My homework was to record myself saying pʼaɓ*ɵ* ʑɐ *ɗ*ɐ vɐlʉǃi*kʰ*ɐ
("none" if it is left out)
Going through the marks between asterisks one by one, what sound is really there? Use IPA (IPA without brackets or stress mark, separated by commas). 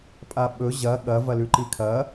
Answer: ɵ, ɠ, kʰ